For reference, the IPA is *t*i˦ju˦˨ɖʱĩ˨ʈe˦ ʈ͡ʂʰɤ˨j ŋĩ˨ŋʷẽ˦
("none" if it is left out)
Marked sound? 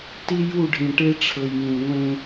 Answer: t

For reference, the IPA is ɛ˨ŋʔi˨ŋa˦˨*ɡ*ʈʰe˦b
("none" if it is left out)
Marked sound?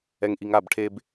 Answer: b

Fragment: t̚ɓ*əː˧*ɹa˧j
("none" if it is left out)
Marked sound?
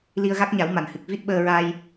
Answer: əː˧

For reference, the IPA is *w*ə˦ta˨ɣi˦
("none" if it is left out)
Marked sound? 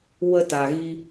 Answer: w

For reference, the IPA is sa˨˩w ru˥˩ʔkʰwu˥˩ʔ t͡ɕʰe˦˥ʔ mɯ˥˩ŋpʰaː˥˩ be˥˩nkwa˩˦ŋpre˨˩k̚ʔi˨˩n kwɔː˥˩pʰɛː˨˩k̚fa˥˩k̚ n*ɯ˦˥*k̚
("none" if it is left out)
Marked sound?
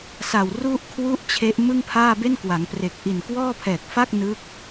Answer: ɯ˦˥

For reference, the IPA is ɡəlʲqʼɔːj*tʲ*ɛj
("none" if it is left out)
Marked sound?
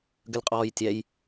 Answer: tʲ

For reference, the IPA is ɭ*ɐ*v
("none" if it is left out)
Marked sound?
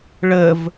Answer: ə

